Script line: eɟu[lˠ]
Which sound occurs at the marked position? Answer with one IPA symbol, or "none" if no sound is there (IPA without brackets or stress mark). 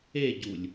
lʲ